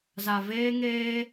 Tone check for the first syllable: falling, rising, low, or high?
low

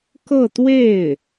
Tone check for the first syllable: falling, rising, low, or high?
falling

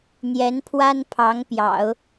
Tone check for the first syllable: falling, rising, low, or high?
rising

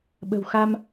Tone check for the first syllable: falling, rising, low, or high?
low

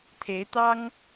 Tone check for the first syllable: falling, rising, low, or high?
rising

